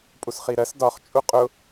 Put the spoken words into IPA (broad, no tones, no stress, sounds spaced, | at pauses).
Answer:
pʼ u s χ i ɾ ɜ s d ɒ χ t͡ʃʼ u qʼ ʊ